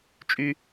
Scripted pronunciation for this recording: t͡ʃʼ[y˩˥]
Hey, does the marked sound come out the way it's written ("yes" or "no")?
no